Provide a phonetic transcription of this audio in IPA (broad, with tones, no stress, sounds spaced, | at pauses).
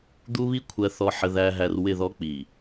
d̪ u˦ β i˦ kʷʰ ɜ˨ θ ɔ˨ ħ ə˨ ð æ˨ ɦ æ˨ r w ɪ˦˨ ð ɔ˦ k͡p i˨